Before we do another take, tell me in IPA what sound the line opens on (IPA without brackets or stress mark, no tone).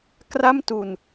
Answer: k